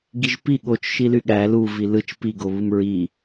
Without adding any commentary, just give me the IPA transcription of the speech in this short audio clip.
ɡ i ʒ p i ɠ o t͡ʃ ʃ i l y ɠ æ l u v i l ɯ t͡ʃ p i ɡ o β ɯ m ɹ i

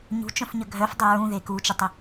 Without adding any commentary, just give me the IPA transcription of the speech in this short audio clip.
ɲ ṳ t͡ʃ œ̃ f ɲ ə ɡʱ œ f dˤ ʏ ɹ ũ ð e k u t͡ʃ ʏ tˤ ʏ

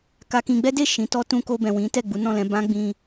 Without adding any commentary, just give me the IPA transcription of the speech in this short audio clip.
k a˧ k ĩ˧ ɡ͡b ɛ˦ d e˦˨ ʃ ĩ˨˦ t ɔ˦ t ũ˧ k o˧ b ɛ̃˨ w ĩ˨˦ t ɛ˦˨ ɡ͡b u˨˦ n ɔ̃˦˨ l ɛ̃˨˦ b ã˦ ɡ͡b ĩ˧

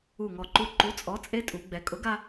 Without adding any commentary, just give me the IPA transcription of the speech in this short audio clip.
u˧˩ ŋ ɔ˧˩ ǃ u˧ ǃ u˨˥ t͡sʼ ɔ˨˥ t͡sʼ e˦˥ tʼ u˩˧ ɡ͡b ɛ˩˧ kʼ ʊ˨˥ ɡ a˧

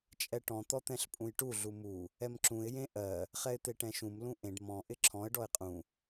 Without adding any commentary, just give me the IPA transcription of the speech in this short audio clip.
t͡ʃʼ ɛ ʈ ɔ̃ t̪ ɔ t̪ ɛ̃ ɬ pʼ ũ j ʈ u ɮ u m u | ɛ m ǁ ũ ɪ̯ j ẽ ʔ ɜ | χ ɛ ɪ̯ t̪ e ʈ ɛ̃ ʃ ũ m l ũ ʔ ẽ ɖ m ɔ̃ ʔ ɪ ǁʰ ɔ̃ ə̯ ɖ ɔ ɪ̯ qʼ ũ

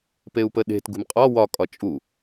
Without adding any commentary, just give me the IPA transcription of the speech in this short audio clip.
p e u̯ p ə ɗ e̤ t ɡ ṳ m qʼ ɒ w ɒ kʼ ɒ t͡ʃʼ u

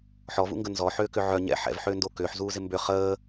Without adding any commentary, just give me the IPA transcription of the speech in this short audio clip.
ħ ɔ v ṵ ŋ ɡ ə n z ɔ ħ ʏː k ʏ ʕ œ ɲ ɛ̰ ħ ɛ̰ v ħ ʏː n d o k ʏː ħ z uː z ɪ m b ʏ χ əː

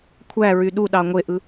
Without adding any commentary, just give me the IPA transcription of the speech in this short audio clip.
kʷʰ æ ɹ y ɗ u ɗ ɑ ŋʷ e ʔ ɯ

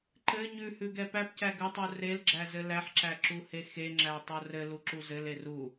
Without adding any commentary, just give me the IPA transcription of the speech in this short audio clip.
ǃ ɘ ɲ ʉ h ʉ ɡ ɛ p æ p c æ ɡ ɘ tˤ u r e l ɡ͡ǁ æ z ɘ l æ ħ ǁ æ ǁ u h e x e ŋ͡ǁ æ tˤ o r ɘ l u ǁ u z ɘ l e r u

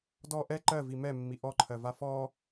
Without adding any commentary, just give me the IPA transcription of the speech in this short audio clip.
d ɔ ʔ ɛ ǃ ɜ v i m ɛ mː i ʔ ɔ ǃʰ ɜ v a f ɔ

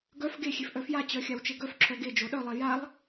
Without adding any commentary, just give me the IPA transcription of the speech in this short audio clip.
ɡ œ f ɡ e xʲ e f ʔ œ f j a t͡ɕ œ xʲ a w t͡ʃ e ɡ œ f ǁʰ œ ɡ e d͡ʒ o ɗ œ lˠ e j a lˠ

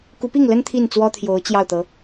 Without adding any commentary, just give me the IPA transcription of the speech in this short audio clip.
k u˧˥ p i˥˩ ŋ l ə˥ n t̪ʰ i˥˩ n t͡s w ɔ˥ t̪ʰ j o˧˥ ʊ̯ t͡ɕ j ɑ˥˩ ʊ̯ t̪ ɤ˧˥

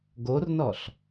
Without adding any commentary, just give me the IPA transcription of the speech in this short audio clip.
ɡ o r n ɔ ɬ

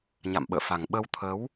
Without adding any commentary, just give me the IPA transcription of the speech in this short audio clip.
ɲ a̰˧˨ m ɓ ə̰ː˧˨ f a˨˩ ŋ ɓ ə˧ w t̪ʰ ə˨˦ w

